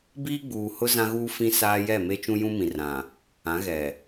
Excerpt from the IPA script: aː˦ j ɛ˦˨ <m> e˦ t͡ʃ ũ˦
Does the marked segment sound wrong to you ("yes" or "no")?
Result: no